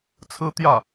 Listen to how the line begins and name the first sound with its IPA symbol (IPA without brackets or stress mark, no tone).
t͡sʰ